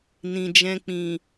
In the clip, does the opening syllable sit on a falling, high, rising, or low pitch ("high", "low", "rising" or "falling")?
low